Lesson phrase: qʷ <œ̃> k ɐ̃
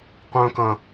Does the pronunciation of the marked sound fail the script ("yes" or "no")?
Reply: no